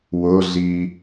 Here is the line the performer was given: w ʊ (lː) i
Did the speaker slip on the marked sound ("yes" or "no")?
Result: yes